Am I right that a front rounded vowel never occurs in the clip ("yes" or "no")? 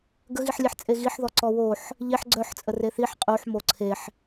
no